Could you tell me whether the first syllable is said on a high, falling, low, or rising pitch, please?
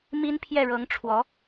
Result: high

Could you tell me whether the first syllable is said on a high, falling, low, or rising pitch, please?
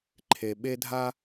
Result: low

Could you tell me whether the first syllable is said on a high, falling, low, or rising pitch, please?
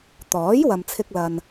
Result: rising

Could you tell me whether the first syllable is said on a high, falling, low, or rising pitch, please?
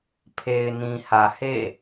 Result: low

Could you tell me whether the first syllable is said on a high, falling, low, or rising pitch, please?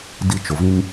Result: high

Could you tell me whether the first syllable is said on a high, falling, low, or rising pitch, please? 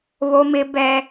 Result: high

